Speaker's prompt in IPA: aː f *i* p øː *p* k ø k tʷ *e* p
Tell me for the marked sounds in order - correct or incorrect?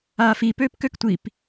correct, correct, incorrect

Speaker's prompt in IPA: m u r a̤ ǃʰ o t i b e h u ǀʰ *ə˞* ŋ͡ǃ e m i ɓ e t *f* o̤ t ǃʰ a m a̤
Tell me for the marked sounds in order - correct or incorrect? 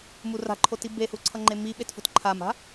incorrect, correct

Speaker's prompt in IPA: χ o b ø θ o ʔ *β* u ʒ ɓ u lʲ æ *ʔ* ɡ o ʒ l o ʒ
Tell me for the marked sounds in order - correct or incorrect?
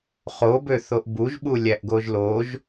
incorrect, correct

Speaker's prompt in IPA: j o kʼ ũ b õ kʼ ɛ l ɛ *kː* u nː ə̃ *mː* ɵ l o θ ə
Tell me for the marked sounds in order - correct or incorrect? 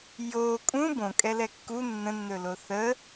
correct, incorrect

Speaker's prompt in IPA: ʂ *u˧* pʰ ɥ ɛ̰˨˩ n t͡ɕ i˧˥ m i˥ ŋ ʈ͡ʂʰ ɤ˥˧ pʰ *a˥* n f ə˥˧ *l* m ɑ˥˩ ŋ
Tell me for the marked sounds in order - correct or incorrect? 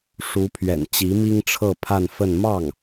incorrect, incorrect, incorrect

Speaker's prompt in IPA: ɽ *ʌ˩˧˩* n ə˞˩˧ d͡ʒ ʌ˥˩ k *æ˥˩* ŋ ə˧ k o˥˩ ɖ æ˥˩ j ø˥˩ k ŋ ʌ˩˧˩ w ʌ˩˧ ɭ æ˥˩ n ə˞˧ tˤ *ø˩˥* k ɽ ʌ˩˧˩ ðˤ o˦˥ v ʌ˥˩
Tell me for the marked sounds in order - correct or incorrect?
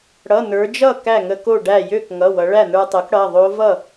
correct, correct, correct

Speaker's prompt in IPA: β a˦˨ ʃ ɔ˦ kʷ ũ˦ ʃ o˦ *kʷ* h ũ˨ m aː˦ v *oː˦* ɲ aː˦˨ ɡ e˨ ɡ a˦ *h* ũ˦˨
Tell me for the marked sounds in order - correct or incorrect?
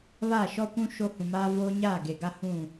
incorrect, correct, correct

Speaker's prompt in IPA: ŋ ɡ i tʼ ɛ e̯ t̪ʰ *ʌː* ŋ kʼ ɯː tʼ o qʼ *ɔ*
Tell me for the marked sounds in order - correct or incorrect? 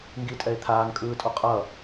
incorrect, incorrect

